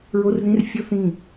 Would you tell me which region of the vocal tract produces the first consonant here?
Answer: tongue tip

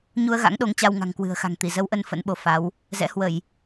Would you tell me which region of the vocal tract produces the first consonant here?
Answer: palate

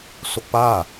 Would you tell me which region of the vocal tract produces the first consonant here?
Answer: tongue tip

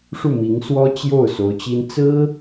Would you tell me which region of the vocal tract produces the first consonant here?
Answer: retroflex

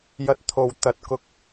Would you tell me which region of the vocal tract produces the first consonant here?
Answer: palate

